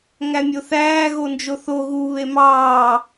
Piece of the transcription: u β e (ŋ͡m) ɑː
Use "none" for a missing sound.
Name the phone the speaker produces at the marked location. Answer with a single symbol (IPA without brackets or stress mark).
m